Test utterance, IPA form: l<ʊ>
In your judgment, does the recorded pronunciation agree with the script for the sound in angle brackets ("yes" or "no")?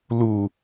no